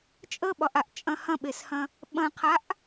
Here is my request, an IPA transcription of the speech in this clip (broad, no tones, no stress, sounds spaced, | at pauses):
t͡ʃʼ ə ɓ ɒ ʔ a ʔ t͡ʃʼ ɐ̃ h ɐ̃ ɓ e s h ɐ̃ | ɓ ɐ̃ qʰ a ʔ